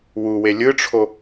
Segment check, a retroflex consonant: present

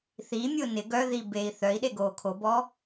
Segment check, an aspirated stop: present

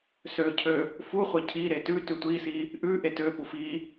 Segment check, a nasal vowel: absent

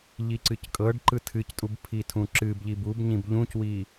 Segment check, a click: present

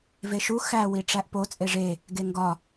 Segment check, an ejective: present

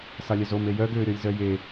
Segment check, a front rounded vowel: present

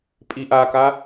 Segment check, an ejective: present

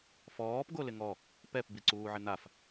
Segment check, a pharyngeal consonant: present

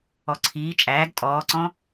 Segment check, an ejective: present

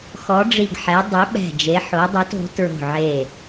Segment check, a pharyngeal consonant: present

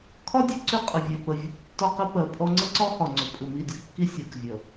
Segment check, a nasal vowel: absent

